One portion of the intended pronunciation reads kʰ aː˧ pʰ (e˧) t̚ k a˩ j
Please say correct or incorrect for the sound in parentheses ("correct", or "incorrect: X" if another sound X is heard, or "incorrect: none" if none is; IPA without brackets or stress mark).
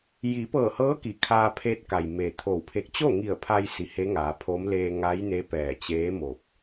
correct